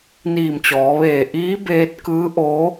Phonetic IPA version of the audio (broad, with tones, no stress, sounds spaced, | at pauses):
n iː˧˩ m t͡ɕ ɔː˩˧ ʋ eː˧˩ ʔ iː˧˥ b eː˧ t̚ k ɯː˧˥ ʔ oː˧˥